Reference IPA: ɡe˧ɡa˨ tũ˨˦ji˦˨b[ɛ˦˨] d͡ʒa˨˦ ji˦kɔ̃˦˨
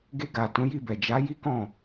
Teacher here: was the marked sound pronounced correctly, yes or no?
no